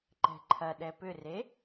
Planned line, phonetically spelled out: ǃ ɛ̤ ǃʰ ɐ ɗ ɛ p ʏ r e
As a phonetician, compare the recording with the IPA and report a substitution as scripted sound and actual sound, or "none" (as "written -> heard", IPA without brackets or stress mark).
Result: none